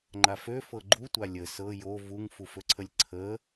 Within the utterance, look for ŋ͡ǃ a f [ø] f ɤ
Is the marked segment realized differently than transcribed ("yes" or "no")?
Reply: no